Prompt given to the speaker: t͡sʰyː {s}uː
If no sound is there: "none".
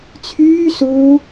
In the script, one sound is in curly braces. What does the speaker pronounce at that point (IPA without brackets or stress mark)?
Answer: s